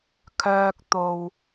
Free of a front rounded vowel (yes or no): no